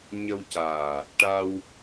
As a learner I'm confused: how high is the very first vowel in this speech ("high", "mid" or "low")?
mid